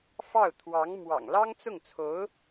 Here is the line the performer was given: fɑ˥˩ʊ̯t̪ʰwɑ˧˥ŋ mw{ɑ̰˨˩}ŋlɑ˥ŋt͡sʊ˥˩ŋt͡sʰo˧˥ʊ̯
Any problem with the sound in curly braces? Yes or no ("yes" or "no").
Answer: no